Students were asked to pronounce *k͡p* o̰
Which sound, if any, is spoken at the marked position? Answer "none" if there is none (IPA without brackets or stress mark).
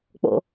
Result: k͡p